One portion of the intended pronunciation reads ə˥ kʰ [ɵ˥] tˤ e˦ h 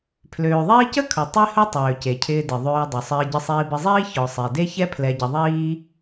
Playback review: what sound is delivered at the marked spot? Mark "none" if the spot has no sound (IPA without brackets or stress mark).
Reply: ɵ˩